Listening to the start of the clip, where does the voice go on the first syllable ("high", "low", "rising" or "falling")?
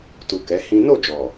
low